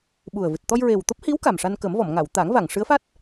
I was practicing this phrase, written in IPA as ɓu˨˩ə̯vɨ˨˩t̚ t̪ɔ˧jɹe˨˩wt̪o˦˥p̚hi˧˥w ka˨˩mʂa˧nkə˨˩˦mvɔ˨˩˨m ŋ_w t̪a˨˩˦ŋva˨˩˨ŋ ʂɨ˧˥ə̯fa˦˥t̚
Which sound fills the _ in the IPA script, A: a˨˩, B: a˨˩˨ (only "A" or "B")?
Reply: B